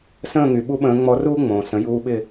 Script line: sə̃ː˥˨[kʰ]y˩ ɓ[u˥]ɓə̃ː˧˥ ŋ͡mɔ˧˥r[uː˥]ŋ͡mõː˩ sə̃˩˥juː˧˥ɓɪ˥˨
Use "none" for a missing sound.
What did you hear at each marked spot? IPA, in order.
ŋ, u˥, uː˥

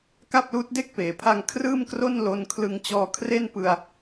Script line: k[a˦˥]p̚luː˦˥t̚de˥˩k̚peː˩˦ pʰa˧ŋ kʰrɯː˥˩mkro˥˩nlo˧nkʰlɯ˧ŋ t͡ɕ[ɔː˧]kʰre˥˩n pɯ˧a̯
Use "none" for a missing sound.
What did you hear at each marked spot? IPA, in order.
a˥˩, ɔː˧

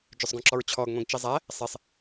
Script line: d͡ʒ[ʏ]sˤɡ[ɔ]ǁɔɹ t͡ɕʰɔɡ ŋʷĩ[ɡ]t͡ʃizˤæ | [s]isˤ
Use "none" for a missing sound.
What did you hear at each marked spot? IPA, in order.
ʏ, ɔ̃, ɡ, sˤ

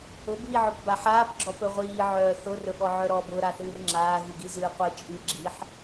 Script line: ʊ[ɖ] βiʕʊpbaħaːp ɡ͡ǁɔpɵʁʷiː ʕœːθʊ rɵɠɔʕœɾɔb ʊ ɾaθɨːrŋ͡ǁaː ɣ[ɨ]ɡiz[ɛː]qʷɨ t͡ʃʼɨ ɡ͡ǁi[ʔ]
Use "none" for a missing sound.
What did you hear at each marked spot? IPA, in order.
b, ɨ, ɨː, ħ

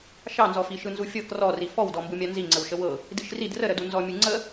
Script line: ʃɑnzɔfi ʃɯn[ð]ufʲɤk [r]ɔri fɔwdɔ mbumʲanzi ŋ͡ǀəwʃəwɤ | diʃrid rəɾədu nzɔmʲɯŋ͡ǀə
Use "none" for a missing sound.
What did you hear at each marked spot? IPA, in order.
z, r

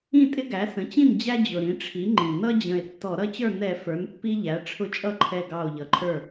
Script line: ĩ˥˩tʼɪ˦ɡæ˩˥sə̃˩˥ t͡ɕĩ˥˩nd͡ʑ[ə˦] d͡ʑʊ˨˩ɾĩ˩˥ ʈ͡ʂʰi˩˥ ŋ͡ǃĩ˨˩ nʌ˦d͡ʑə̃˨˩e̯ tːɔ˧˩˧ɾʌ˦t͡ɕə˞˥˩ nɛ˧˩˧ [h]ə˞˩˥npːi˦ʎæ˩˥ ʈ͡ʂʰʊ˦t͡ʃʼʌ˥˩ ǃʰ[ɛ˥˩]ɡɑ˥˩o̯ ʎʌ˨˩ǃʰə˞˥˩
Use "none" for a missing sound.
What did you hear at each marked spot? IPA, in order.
æ˦, f, ɛ˥˩

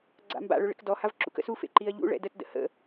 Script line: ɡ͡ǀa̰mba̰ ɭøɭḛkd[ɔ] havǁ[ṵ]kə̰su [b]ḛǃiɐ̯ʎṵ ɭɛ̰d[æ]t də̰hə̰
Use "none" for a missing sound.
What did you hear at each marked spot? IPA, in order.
ɔ, ṵ, f, ə

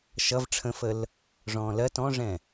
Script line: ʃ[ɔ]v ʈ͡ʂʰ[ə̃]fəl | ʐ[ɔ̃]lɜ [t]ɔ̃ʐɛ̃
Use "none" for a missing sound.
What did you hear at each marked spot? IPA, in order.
ʌ, ə̃, ɔ̃ː, t

